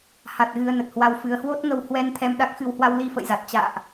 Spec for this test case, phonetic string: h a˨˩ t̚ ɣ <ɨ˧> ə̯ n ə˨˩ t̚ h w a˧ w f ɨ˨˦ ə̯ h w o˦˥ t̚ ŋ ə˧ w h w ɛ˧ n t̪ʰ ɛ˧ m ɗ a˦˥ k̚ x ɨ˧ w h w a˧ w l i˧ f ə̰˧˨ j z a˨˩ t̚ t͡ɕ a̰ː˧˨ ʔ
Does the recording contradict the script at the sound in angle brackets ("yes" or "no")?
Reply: no